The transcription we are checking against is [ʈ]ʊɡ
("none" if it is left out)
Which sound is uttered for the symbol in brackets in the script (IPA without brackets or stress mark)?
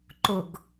ǃ